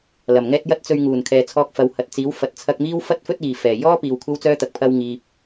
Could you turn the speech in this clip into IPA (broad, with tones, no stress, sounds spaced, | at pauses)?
l ɐ˨˩ m ŋ ɛː˥ t̚ j ɐ˥ t̚ t͡s ɵ˧ ɥ ŋ uː˨˩ n kʰ ɛː˨ t͡sʰ ɔː˧ k̚ f ɐ˨˧ w h ɐ˨ t̚ t͡s iː˨˥ w f ɐ˨ t̚ t͡sʰ ɐ˧ k̚ m iː˥ w f ɐ˥ t̚ f ɵ˥ t̚ iː˨ f ɛː˨˩ j ɔː˥ p iː˨ w kʷʰ ɐ˥ w t͡s œː˥ t̪ ɐ˨ k̚ pʰ ɐ˥ w ŋ iː˧ p̚